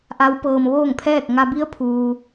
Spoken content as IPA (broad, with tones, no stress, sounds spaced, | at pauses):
ʔ a˧˥ w p ɤː˧ m ʋ oː˥˨ ŋ pʰ ɛː˥˨ k̚ ŋ a˧ b i˧˥ ə̯ pʰ uː˧